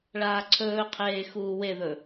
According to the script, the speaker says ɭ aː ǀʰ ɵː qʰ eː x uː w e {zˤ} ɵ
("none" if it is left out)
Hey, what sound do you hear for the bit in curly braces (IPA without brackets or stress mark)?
ð